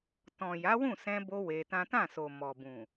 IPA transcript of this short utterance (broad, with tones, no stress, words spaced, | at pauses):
tɔ̃˨ja˨˦wũ˦˨ sɛ̃˧bo˧ we˧tã˦ tã˦˨so˨ mɔ˨bũ˨